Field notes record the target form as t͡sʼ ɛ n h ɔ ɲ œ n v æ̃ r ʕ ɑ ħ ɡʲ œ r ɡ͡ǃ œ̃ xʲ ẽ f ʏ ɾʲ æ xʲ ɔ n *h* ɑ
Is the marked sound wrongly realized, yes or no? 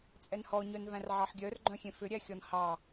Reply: no